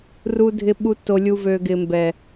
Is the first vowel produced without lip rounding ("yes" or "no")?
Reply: no